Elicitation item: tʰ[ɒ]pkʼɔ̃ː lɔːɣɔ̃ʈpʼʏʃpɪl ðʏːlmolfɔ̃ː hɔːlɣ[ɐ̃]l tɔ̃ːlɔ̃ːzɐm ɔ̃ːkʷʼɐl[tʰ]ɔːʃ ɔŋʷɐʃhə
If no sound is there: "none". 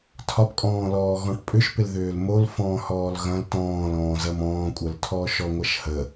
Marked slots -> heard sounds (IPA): ɒ, ɐ̃, tʰ

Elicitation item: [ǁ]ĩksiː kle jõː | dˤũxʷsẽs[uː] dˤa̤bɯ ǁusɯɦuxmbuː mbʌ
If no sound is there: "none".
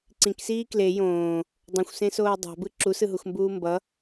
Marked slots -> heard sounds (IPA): ǀ, oː

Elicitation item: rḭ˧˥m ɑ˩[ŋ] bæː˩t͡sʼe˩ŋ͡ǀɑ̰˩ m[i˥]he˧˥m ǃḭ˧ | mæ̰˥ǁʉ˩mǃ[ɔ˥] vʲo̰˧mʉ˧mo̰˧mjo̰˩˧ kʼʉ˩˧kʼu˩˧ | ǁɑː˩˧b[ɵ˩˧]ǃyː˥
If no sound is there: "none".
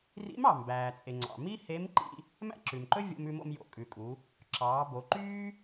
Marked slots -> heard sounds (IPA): m, i˥, ɵ˥, o˩˧

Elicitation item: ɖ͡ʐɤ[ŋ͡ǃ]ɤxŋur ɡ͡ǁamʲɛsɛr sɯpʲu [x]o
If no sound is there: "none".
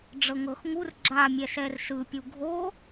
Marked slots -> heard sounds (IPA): ŋ, ɡʱ

